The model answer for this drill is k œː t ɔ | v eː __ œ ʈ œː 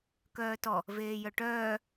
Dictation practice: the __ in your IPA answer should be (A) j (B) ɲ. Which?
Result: A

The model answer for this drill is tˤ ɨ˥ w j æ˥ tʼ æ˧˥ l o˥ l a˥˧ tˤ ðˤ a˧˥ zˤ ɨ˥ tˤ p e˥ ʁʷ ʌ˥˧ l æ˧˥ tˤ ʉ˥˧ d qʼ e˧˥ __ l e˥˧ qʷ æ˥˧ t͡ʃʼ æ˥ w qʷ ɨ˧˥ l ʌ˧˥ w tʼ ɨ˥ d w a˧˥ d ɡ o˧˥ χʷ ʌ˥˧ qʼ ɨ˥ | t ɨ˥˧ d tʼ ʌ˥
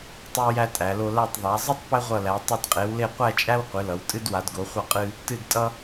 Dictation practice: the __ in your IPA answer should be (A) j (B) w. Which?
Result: B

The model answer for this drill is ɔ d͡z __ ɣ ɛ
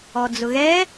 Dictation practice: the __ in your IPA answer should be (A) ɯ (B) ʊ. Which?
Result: B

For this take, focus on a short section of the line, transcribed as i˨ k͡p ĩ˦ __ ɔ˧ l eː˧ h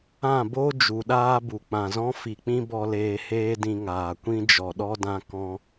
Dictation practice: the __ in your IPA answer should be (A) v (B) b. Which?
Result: B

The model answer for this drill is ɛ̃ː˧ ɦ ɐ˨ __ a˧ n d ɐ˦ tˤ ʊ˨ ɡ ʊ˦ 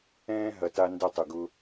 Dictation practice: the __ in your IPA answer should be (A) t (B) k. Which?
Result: A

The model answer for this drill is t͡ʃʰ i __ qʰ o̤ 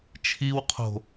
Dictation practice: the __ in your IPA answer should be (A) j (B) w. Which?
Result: B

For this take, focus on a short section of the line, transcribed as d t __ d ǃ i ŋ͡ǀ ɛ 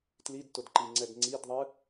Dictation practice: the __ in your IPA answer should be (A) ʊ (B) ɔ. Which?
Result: A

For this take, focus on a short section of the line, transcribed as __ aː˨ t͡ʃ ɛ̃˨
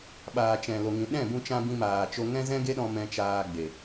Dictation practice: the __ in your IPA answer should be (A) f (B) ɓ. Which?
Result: B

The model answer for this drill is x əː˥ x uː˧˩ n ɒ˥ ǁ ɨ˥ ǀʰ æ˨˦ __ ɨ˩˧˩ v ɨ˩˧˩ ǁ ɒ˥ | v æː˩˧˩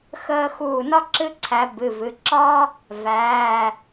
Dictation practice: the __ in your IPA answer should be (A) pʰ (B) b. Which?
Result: B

